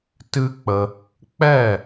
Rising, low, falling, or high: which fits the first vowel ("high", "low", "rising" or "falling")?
high